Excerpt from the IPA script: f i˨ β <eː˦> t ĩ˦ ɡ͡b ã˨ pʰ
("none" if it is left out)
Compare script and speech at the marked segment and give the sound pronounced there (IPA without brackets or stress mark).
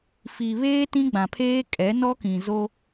eː˦